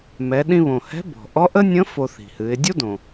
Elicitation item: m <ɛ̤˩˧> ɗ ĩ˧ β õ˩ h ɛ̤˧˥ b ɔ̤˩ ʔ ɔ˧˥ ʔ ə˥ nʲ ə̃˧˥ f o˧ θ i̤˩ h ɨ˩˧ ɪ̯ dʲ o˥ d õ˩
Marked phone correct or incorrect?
incorrect